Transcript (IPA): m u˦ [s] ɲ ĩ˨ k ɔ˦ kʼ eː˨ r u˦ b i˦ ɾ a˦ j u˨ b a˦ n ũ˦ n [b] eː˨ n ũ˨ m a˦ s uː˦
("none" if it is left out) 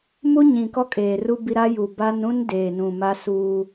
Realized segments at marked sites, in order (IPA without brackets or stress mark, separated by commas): none, d